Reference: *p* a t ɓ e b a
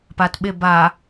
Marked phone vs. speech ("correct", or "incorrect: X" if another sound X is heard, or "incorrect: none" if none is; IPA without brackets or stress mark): correct